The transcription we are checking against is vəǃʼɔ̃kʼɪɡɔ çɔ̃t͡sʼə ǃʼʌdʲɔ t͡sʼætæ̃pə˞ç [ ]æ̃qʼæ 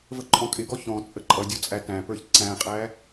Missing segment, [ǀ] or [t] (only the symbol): ǀ